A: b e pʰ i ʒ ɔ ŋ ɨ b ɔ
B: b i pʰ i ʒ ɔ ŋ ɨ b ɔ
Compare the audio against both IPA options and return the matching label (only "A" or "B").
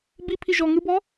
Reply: B